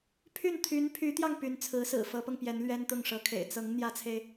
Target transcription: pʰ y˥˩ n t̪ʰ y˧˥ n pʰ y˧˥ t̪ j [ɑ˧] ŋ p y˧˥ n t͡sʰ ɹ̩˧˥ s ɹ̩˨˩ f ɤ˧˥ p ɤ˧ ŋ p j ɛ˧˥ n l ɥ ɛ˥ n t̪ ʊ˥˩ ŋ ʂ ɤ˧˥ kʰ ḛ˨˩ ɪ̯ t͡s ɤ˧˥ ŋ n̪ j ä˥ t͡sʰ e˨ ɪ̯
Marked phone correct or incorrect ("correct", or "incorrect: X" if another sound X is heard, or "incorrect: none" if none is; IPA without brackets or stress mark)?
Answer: correct